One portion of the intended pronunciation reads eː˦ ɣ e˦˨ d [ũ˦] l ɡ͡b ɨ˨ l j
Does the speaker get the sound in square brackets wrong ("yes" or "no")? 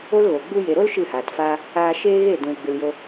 yes